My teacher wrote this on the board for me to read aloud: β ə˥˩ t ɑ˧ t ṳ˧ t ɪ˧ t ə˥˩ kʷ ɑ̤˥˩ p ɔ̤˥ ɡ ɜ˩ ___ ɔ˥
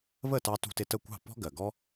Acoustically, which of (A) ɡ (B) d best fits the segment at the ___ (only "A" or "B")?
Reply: A